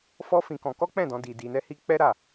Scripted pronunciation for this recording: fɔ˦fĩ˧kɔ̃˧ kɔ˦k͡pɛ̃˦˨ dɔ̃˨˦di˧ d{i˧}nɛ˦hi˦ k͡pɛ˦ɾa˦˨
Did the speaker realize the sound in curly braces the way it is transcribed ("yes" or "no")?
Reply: yes